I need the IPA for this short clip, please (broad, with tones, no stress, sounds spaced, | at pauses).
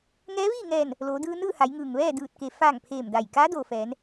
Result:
ŋ ɛː˧˥ ʋ iː˥˨ ŋ ɛː˧˩ n | l oː˩˧ d ɯː˧ n ɯː˥˨ h a˩˧ j ŋ ɯː˩ ŋ ʋ ɛː˥˨ d ɯː˧˩ t̚ k e˩ f aː˧˩ ŋ pʰ eː˧˩ m d a˧˩ j k aː˧˥ d oː˩ f ɛː˩˧ n